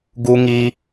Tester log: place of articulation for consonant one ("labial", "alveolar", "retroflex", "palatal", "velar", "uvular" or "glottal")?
velar